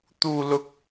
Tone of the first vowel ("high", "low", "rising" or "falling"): high